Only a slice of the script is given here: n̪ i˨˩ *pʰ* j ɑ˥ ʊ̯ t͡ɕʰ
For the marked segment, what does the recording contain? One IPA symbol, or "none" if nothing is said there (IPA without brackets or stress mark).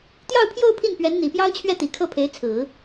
p